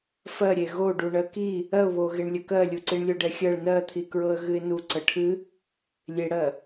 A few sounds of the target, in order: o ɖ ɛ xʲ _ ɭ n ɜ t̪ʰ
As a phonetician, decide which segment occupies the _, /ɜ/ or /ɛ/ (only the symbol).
ɜ